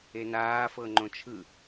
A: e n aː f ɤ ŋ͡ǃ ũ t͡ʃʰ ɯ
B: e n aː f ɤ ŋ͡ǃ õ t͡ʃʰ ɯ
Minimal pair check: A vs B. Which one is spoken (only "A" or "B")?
B